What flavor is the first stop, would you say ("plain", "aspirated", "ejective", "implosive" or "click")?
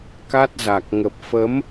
plain